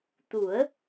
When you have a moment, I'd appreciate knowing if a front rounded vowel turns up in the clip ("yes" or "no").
no